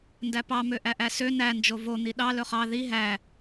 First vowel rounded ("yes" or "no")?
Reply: no